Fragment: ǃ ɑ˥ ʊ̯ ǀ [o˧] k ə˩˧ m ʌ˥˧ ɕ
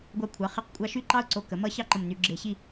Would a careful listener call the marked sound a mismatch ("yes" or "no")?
no